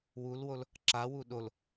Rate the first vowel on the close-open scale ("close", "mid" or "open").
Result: close